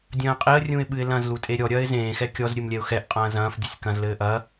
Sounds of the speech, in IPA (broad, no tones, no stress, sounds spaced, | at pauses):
dʲ ɐ̃ː qʼ i ə̯ rʲ ũ ɪ̯ ɓ ɨ ɪ̯ l ɐ̃ z l u tʼ e ɾʲ ɔ ɾʲ ɐː ɪ̯ z ẽː x ɛ kʲ ɔ z ɾʲ ɨ m lʲ ɛ ʊ̯ x ɛ ʔ qʼ ɐ̃ː z ɐ̃ː f dʲ ɘ sʲ k ɐ̃ z l ɘː ʔ ɐ